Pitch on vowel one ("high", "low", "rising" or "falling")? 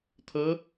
rising